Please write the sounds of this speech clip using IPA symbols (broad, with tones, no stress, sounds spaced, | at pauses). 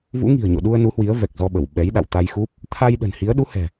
v ṵ˧˥ ŋ i̤˨˩ ə̯ ɲ o̰˧˨ ɗ u˧ ə̯ n u˨˦ h w i˨˦ ə̯ v ɛ˨˩ k̚ z ɔ˧ ɓ ə˧˩ w ɓ ɛ˨˦ j ɗ a̰˧˨ w t̪ a˧ j x u˦˥ p̚ | t̪ʰ a˧ j ɗ ə̤˨˩ n h i˨˦ ə̯ ɗ u˨˦ h ɛ̤˨˩